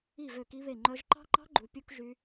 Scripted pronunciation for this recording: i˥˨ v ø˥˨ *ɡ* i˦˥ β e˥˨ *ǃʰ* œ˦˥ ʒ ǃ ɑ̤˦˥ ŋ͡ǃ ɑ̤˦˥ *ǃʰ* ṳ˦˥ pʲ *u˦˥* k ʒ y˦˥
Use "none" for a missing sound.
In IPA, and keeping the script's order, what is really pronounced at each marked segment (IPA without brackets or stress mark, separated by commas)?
k, ŋ͡ǃ, ɡ͡ǃ, u˦˥